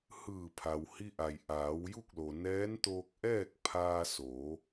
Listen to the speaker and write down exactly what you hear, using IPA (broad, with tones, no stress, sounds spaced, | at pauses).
h ɯː˧˩ pʰ a˩ w h i˧ ʔ a˩ j ʔ aː˩˧ w j u˥˨ k̚ l o˩ n ɛː˧˥ n t̪ oː˧ k̚ ʔ ɛː˥˨ k̚ pʰ aː˧ s oː˩˧